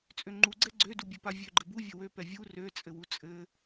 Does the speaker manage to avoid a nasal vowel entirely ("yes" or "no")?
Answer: yes